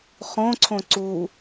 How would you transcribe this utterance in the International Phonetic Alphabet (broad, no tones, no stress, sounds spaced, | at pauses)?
χ õ ǀʰ õ ǀ u